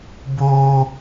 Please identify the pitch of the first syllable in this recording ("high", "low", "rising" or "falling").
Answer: high